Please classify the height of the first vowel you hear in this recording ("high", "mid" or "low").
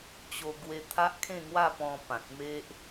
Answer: mid